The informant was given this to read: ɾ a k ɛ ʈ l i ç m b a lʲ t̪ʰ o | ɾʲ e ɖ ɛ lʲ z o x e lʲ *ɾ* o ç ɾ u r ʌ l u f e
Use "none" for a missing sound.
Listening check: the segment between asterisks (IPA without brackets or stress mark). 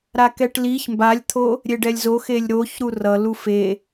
ɾ